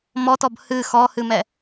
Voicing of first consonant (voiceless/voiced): voiced